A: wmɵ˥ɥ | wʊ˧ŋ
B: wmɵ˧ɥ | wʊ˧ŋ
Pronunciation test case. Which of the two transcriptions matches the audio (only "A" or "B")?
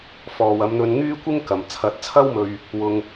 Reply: B